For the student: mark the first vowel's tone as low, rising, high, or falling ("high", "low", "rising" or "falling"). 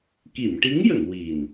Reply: low